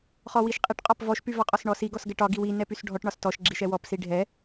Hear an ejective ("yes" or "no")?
yes